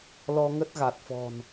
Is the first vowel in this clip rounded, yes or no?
yes